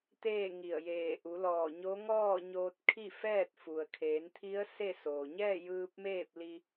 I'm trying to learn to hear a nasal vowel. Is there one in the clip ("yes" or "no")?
no